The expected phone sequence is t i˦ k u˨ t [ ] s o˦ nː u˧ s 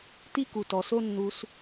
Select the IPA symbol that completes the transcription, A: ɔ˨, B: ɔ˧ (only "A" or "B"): A